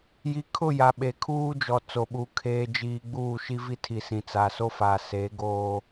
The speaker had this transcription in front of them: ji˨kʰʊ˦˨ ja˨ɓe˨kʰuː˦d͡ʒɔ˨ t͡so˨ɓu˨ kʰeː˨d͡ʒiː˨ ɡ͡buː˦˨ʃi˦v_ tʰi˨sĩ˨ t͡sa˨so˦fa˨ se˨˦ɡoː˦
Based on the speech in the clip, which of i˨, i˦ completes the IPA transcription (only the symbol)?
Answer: i˦